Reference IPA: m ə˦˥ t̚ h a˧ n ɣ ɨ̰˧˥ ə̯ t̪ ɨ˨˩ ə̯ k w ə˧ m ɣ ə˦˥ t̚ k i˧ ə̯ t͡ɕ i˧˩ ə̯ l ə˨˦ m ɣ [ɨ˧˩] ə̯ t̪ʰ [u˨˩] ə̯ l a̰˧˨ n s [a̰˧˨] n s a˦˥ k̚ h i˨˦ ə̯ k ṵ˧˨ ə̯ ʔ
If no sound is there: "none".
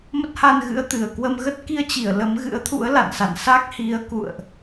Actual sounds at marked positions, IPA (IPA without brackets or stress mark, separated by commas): ɨ̰˧˥, ṵ˧˥, a̰˧˨